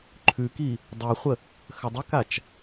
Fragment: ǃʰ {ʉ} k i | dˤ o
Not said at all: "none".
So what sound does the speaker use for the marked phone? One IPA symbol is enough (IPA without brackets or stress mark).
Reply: ʉ